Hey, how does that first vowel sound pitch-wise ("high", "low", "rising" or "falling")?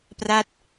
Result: falling